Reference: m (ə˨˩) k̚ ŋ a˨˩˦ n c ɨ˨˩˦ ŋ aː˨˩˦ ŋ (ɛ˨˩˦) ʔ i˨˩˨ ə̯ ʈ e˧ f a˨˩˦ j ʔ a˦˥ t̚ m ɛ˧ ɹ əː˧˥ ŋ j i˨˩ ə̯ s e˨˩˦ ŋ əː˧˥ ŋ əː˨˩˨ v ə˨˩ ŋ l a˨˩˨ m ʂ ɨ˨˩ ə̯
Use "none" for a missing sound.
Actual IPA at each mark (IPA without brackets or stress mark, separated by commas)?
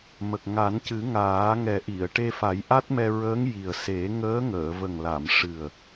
ə˨˩, ɛ˨˩˦